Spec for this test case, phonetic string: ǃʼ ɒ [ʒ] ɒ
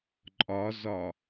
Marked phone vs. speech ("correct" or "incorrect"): incorrect